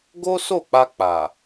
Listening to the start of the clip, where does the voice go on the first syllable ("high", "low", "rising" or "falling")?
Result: high